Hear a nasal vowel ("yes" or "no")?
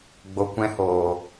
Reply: yes